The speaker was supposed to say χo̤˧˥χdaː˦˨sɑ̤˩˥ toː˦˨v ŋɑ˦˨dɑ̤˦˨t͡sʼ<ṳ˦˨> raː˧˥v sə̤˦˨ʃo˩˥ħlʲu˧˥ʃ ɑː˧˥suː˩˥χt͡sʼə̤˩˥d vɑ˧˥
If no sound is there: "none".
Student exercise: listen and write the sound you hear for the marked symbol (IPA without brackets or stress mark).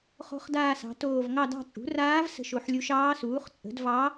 ṳ˩˥